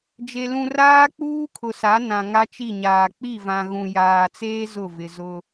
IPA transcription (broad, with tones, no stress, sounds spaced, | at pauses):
d͡ʒ e˨ l ũ˨ r aː˦ k͡p uː˦ kʰ ʊ˨ s a˨˦ n ã˨ ŋ a˦ t͡ʃ i˦˨ ɲ aː˨ k͡p i˦˨ v ã˨ ɣ ũ˨ j aː˨ t͡s eː˦ z ʊ˦˨ v ɪ˨ z ʊ˦